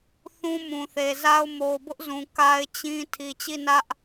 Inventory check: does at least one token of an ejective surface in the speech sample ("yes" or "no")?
no